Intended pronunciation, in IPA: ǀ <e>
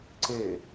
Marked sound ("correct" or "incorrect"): correct